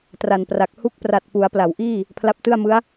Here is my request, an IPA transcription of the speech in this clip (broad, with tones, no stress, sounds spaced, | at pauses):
t r a˨˩ n p r a˨˩ k̚ h u˦˥ k̚ p r a˨˩ t̚ p u˩˦ a̯ p l a˩˦ w ʔ iː˥˩ | pʰ l a˦˥ p̚ t ɯ˥˩ a̯ m ɯ˦˥ a̯